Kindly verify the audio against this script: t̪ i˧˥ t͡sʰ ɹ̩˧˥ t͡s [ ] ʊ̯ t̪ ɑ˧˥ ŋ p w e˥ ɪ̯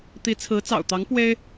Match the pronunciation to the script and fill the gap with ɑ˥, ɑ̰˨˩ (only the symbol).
ɑ̰˨˩